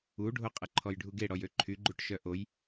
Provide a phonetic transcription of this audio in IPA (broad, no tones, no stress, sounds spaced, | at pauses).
u ɖʱ o qʼ ə ǃʰ ɔ j ɖʱ u ɡ e ɽ ɔ j ø ǃʰ y ɡ͡ǃ u ʈ ʃ œ ʔ o j